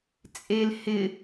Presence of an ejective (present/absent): present